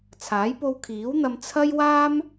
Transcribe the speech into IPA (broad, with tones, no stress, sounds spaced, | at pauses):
t͡sʰ aː˨˥ j p o˧ w kʰ iː˨˥ w n̪ ɐ˧ m t͡sʰ ɐ˥ j w aː˥ m